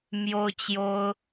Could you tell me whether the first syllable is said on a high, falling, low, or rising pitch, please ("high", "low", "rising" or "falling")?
high